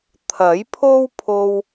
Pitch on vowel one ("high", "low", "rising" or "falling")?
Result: rising